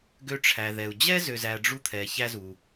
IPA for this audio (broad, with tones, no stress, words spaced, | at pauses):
ɡø˦ʈ͡ʂʰæ˨ðɛ˨u̯ d͡ʑɛ˥zø˨zæ˨ ɖ͡ʐu˥t̪ʰɛ˨ çæ˥zu˨